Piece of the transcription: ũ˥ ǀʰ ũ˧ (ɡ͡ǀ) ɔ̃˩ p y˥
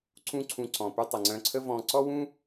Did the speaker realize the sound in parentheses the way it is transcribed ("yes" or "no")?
no